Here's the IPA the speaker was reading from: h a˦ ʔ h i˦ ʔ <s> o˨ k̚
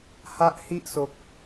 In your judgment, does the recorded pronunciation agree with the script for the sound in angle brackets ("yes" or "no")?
yes